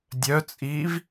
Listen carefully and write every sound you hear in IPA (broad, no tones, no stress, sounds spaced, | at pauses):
dʲ œ t͡sʼ iː v